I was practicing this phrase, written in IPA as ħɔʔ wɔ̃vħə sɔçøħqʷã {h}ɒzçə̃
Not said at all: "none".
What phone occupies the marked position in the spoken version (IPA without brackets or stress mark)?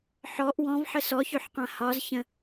h